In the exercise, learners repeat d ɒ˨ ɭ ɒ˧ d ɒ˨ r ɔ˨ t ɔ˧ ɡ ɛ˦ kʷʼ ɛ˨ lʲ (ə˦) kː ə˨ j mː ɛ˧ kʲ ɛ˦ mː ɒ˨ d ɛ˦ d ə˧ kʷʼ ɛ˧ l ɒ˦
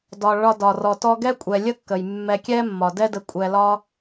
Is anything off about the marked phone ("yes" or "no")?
no